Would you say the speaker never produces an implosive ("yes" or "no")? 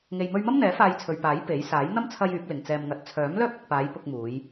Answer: yes